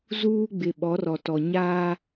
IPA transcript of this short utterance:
z uː˦ ɡ͡b ɪ˨ ɓ ɔ˨˦ r ɔ˨ t ɔ˨ ɲ aː˦

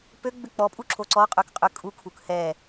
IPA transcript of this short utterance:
p ø ɡ͡b ʏ k͡p ɔ pʼ u ǁʰ o ǀ ɔ qʼ ø k qʼ ʏ kʼ u kʰ u k h ɛ

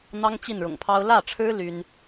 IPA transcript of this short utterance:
n̪ ɑ˥ ŋ t͡ɕ i˥˩ n ɻ ʊ̰˨˩ ŋ pʰ ɑ˥ ʊ̯ l ä˥˩ ʈ͡ʂʰ ɻ̩˥ l y˥ n

